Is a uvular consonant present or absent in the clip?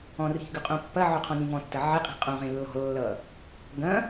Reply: present